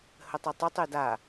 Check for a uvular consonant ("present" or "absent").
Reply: absent